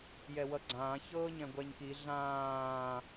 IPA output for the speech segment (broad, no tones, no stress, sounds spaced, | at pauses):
j ɛ w ʌ ɡ͡ǀ ãː ç ɤː ɲ ɛ̃ ɡʷ ɛ ɲ k i ɮ ãː